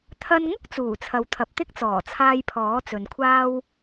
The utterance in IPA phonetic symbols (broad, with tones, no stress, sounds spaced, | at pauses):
t̪ʰ ɐ˧ n ŋ ʊ˥ k̚ t͡s uː˨˩ t͡sʰ ɐ˨ w t̪ʰ ɐ˨ p̚ t̪ ɪ˥ k̚ t͡s ɔː˨˩ t͡sʰ aː˧ j pʰ ɔː˨˥ t͡s ɵ˨ n kʷʰ aː˥ w